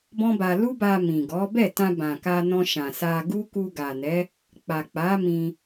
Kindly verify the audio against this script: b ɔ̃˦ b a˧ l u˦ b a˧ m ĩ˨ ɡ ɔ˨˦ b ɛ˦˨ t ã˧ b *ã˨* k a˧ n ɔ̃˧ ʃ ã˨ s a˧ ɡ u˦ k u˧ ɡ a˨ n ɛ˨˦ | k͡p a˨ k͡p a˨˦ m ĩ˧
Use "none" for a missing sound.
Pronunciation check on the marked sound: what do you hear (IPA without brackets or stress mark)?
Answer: ã˨